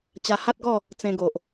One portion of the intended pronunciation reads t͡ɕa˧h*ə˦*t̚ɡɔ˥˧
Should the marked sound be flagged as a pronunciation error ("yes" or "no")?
yes